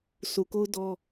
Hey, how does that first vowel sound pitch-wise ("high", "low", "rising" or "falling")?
low